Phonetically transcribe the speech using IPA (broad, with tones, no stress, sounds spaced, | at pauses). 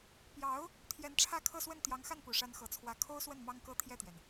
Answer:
p j ɑ˧˥ ʊ̯ | t̪ʰ j ɛ˧˥ n ʈ͡ʂʰ ä˥˧ kʰ ɤ˥˧ s w ə˥˩ n t̪ j ɑ˧˥ ŋ x a˥˩ n p u˨˩ ʂ a˧˥ n x ɤ˧˥ t͡sʰ w ä˥ kʰ o˥ ʊ̯ s w ə˥˩ n m ɑ˥ ŋ k ɤ˥ t̪ʰ j ɛ˥˩ t̪ ɥ ɛ˩ n